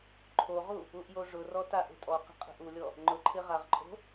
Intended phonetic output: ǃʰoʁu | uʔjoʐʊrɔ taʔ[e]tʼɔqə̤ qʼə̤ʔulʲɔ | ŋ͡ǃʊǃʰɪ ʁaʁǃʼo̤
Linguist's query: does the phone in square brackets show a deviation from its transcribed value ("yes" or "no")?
yes